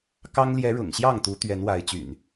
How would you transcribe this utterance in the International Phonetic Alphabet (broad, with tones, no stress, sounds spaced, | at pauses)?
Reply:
k ɑ˦ ŋ l j ɛ˨˦ ɻ ʊ̰˨˩ ŋ ɕ j ɑ˥˨ ŋ t̪ u˨˦ t̪ ɥ ɛ˨˦ n w a˨˦ ɪ̯ t͡ɕ y̰˨˩ n